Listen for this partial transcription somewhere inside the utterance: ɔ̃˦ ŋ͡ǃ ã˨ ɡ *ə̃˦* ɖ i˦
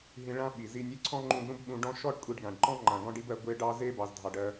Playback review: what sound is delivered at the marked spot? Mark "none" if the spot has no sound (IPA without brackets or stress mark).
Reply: ɔ̃˦